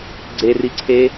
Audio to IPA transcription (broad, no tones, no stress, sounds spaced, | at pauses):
ɡ͡ǀ e r i ǀʰ e